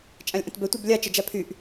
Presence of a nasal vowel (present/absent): present